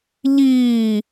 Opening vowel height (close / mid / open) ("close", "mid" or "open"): close